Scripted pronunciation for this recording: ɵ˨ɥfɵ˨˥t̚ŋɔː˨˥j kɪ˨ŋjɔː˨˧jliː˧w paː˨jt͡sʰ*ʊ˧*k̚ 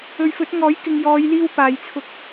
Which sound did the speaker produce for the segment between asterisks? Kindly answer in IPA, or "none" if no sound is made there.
ʊ˧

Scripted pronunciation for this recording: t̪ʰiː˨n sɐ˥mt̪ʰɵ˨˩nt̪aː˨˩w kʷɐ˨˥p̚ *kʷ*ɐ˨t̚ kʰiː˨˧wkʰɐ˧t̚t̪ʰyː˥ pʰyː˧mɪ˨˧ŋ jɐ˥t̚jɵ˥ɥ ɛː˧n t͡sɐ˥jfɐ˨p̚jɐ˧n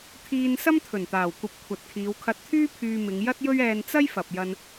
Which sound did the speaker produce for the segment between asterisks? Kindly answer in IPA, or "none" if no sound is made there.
kʷʰ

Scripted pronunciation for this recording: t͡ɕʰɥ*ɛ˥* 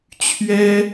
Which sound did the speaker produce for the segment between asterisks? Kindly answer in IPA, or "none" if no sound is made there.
ɛ˥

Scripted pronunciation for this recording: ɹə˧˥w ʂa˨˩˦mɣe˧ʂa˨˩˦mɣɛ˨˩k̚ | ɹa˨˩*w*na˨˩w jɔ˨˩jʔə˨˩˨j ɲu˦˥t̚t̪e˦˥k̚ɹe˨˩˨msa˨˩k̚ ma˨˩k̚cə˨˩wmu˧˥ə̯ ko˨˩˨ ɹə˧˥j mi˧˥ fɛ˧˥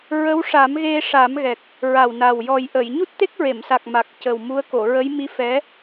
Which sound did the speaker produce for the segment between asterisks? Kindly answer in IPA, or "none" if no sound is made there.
w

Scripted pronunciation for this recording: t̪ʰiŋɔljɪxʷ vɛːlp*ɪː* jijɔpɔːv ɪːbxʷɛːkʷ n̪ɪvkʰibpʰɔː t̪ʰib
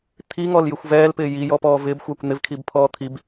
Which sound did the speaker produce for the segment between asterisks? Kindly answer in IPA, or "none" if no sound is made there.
ɪː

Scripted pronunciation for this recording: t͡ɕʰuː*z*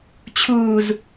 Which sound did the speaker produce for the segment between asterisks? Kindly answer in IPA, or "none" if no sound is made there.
z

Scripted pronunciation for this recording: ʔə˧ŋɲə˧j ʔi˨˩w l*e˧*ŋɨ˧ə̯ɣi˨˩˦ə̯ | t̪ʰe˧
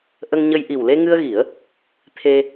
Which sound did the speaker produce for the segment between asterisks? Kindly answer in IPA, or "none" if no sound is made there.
e˧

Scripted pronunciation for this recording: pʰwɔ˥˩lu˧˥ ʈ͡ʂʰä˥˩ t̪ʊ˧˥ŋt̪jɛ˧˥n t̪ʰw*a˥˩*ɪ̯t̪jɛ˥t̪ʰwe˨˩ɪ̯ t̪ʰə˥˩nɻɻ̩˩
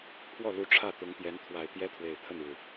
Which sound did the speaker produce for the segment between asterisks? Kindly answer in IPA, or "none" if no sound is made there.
a˨˩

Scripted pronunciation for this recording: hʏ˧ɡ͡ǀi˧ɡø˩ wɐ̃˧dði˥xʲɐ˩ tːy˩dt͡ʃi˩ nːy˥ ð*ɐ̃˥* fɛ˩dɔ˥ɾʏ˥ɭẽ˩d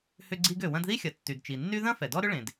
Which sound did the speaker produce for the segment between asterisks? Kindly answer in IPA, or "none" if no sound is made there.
ɐ̃˥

